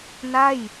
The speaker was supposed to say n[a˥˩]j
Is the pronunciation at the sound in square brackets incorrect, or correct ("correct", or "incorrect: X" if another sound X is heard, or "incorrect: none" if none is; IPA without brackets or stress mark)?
correct